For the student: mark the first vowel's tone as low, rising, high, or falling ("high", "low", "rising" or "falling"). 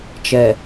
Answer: low